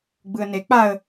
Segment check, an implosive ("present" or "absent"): absent